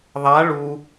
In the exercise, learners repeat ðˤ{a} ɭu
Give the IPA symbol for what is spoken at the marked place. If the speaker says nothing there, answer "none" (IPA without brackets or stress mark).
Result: a